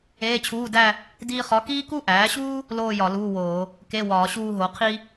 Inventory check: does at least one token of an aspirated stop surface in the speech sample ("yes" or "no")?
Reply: yes